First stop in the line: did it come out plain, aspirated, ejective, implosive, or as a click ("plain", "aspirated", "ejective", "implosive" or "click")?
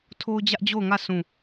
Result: aspirated